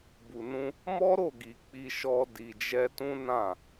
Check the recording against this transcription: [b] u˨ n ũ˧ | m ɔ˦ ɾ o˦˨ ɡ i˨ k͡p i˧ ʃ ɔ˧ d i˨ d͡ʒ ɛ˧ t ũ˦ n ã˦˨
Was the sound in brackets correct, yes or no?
yes